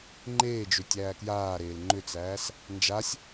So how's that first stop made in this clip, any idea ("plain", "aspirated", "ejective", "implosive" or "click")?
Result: click